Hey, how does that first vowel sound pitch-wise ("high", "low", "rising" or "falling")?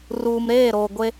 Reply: low